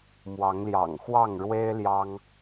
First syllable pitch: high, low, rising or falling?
rising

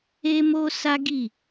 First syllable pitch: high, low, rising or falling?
high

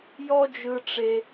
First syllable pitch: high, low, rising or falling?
high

